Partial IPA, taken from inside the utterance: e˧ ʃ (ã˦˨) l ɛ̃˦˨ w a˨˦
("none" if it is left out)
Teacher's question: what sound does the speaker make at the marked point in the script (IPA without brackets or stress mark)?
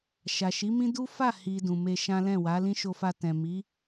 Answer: ã˦